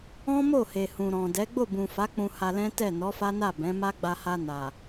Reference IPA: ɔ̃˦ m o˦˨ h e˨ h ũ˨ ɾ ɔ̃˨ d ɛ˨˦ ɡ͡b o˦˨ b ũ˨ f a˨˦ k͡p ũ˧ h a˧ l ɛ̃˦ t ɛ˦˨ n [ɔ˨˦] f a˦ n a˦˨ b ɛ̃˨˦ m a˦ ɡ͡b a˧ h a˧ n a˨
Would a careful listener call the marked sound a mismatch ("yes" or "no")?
no